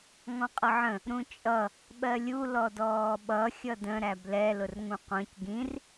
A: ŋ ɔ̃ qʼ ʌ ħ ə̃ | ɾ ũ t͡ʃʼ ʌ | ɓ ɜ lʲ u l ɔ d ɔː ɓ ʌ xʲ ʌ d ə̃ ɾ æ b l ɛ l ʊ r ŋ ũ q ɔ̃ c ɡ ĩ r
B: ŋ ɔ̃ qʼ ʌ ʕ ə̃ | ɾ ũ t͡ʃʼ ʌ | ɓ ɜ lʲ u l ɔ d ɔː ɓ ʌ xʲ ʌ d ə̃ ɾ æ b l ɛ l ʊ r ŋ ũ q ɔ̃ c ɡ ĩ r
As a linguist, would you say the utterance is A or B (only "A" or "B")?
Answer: B